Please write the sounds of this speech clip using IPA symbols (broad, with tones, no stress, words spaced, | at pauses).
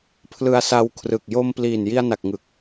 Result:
pʰlɯ˧a̯ sa˧wkʰrɯ˨˩k̚ jo˧mpliː˨˩n ji˧a̯na˨˩k̚ŋɯ˨˩k̚